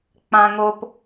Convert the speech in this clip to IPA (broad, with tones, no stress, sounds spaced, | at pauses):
k͡p ã˧ ŋ o˧ p